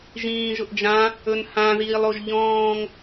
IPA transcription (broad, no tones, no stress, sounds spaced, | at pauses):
ʒ ĩː ʒ ʊ ʔ d͡ʒ ã | ɵ n h ã ð iː lˠ o ʒ ʎ ɔ̃ː ŋ